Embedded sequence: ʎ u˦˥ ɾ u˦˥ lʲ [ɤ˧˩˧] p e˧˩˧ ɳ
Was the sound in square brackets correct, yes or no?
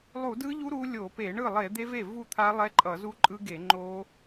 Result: no